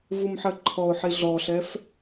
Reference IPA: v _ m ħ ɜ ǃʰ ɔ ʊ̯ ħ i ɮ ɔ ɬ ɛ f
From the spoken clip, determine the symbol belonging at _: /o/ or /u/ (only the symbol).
u